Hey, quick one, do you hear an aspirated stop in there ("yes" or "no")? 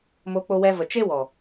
no